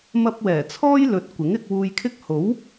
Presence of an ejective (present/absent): absent